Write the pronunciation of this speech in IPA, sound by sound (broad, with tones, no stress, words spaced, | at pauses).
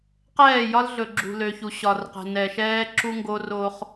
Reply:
qɛː˦˨jɒ˦lɮɵ˨ ɡ͡ǁṳ˨lø˨çu˨ ɕɒ˨rqɛ̤˨ nɛ˨ʃɛː˦ ǁu˦ŋɡo˦ro˦χ